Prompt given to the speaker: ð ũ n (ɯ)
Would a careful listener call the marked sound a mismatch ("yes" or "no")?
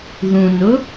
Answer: yes